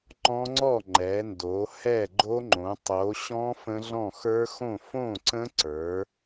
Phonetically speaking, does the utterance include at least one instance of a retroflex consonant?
no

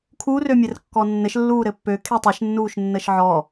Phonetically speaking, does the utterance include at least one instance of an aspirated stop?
yes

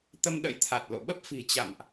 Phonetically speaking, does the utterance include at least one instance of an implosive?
yes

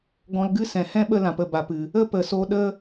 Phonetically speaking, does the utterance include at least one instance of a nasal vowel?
yes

